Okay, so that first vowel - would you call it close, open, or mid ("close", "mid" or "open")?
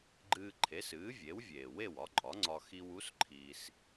close